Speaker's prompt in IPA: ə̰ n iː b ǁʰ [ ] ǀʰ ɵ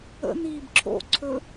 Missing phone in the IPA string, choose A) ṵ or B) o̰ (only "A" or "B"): B